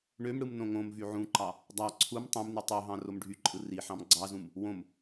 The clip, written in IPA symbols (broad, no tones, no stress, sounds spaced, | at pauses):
ɳ ø m ɽ ɯ m n õ ŋ õ m v y ʕ ũ ǃ ɑ | dˤ ɑ ǀʰ u m tˤ ẽ m n y tˤ ø ɦ ɑ̃ r o m ɖʱ y ǃʼ ɯ r i ħ ɑ̃ m ɡ͡ǀ ɑ z ũ m | w õ m